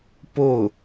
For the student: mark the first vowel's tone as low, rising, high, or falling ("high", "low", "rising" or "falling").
falling